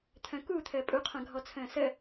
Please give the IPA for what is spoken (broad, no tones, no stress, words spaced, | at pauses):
t̪ʰœ̃ku t̪ʰəːpʼuqʰœ̃ ɡʱɔt͡sʰə̃ːsə